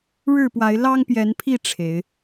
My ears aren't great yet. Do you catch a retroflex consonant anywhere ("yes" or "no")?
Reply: yes